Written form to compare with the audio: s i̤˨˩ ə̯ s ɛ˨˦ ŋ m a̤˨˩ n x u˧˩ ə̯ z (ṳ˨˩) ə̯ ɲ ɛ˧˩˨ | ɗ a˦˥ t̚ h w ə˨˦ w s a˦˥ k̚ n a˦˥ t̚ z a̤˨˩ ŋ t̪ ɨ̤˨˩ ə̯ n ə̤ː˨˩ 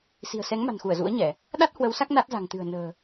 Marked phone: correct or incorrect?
incorrect: ṵ˧˥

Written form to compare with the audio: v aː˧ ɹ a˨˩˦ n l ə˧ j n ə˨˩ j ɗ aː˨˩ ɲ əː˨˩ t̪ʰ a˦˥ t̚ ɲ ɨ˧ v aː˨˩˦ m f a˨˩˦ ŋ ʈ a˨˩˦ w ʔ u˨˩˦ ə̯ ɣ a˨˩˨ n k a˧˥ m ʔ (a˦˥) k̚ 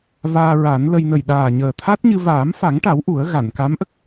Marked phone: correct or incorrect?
incorrect: ə˦˥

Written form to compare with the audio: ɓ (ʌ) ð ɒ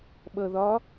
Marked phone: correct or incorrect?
correct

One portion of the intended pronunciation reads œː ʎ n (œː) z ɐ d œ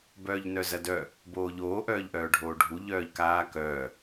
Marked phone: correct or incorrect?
incorrect: œ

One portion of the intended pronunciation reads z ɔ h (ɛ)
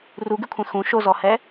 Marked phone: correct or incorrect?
correct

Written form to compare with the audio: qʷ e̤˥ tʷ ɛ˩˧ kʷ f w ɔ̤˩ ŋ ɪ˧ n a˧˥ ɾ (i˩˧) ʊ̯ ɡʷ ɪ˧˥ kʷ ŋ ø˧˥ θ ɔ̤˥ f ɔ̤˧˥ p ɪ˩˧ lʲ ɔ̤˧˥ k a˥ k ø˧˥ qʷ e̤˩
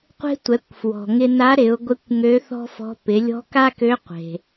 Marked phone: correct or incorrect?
incorrect: ɪ˩˧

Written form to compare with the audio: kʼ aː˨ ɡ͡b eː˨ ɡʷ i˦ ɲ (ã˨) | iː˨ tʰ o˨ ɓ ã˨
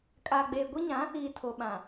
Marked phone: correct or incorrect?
incorrect: ã˨˦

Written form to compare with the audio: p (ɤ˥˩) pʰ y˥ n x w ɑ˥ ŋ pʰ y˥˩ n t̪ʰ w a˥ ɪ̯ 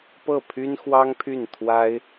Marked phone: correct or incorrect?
correct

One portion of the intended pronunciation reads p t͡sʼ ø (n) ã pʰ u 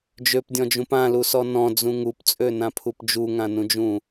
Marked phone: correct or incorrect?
correct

